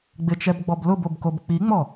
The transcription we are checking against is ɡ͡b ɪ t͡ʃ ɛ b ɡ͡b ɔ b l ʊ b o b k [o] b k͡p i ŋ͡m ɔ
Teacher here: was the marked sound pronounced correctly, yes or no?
yes